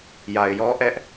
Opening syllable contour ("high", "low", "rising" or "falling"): low